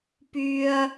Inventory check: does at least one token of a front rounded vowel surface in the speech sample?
yes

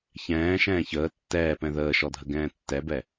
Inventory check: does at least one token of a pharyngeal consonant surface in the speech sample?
no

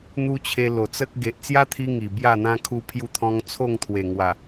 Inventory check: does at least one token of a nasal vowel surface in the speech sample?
yes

